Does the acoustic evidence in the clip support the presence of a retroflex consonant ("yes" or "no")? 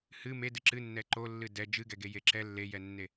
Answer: no